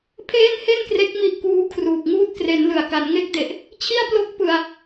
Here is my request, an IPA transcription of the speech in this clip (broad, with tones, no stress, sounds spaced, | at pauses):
pʰ eː˥˩ n h e˥˩ n k r e˦˥ k̚ m i˦˥ ʔ k uː˦˥ kʰ r uː˨˩ k̚ ŋ uː˦˥ t̚ k r e˩˦ n l ɯ˨˩ a̯ k a˩˦ n ŋ e˦˥ k̚ d e˨˩ ʔ | t͡ɕʰ i˥˩ a̯ p l o˥˩ k̚ p ɯ˧ a̯